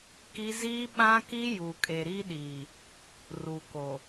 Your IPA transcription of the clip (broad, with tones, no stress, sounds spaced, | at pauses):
k i˦ z iː˦ ɓ ã˦ k i˦ j u˨ kʼ e˨ ɾ i˦ ɗ iː˨ | r u˨ k o˨